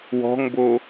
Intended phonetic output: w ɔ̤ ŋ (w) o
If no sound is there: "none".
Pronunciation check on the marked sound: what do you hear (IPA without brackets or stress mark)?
b